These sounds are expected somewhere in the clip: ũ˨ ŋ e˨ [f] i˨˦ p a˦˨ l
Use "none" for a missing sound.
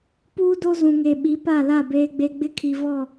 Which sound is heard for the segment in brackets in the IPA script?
ɓ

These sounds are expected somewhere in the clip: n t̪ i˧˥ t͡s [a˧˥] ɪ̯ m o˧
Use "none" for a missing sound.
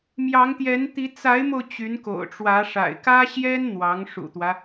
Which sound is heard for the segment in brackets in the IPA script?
a˧˥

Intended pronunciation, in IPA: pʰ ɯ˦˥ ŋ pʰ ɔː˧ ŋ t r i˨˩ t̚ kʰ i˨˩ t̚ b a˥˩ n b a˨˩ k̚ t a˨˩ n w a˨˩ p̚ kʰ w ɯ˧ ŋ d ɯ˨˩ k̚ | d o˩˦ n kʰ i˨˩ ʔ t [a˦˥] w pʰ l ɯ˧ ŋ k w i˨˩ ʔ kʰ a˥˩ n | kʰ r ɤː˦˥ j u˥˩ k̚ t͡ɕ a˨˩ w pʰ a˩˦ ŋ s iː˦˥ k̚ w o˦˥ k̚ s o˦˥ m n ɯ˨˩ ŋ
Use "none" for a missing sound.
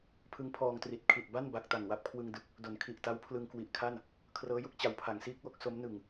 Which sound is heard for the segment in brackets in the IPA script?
a˦˥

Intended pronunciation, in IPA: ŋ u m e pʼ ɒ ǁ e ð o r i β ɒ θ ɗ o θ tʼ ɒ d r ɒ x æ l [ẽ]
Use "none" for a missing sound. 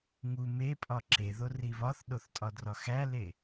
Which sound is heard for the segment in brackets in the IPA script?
e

